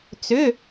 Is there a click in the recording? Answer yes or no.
no